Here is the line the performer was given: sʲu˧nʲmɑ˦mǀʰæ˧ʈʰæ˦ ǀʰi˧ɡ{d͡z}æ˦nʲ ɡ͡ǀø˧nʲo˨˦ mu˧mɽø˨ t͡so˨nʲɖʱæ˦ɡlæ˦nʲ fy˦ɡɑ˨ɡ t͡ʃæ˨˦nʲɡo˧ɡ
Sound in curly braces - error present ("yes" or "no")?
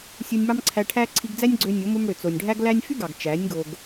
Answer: no